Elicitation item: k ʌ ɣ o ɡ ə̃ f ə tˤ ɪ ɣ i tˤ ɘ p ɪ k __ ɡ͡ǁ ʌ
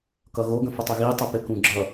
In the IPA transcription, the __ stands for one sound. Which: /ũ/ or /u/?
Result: ũ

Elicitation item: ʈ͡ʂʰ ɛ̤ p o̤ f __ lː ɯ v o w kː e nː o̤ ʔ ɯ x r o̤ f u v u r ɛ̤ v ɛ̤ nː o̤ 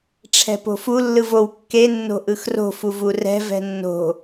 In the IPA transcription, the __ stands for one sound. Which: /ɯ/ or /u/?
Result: u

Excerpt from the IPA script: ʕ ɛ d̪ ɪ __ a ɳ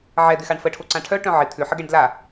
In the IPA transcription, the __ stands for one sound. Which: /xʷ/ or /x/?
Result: x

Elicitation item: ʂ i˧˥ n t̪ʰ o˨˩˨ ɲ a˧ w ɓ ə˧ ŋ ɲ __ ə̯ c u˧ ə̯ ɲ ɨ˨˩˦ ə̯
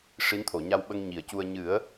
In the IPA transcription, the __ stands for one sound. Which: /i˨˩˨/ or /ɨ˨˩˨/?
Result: i˨˩˨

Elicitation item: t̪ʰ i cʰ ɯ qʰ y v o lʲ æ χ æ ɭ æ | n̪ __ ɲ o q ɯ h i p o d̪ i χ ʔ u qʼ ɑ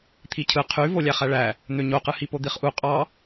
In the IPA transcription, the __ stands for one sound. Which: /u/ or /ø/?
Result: ø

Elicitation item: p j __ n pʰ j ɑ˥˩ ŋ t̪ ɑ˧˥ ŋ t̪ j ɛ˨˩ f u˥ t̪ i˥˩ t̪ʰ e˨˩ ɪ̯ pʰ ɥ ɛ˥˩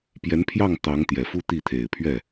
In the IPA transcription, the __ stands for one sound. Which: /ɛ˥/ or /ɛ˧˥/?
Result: ɛ˧˥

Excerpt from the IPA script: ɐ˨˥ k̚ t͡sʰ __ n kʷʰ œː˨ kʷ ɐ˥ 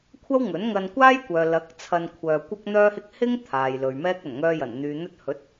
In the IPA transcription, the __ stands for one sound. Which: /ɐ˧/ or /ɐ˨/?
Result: ɐ˧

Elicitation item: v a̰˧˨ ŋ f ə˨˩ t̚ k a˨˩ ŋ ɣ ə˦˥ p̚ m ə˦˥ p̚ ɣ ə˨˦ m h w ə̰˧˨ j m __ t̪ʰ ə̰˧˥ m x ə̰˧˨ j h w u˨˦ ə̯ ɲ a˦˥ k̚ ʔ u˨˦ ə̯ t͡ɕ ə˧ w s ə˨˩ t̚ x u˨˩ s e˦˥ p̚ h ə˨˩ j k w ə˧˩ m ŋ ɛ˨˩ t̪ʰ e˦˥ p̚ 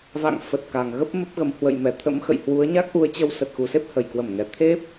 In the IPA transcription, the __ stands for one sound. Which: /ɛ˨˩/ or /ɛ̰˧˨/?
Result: ɛ˨˩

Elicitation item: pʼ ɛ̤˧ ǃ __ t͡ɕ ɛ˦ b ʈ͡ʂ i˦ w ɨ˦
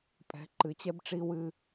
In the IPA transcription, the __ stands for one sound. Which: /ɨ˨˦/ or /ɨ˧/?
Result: ɨ˨˦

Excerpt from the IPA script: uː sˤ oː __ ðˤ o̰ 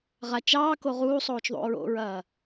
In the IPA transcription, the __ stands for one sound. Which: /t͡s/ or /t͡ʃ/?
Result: t͡ʃ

